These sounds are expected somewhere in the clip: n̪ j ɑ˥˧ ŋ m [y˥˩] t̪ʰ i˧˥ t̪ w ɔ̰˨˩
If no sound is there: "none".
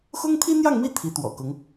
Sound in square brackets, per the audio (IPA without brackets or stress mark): i˥˩